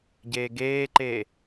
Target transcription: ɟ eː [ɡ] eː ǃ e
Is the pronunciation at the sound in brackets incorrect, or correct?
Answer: correct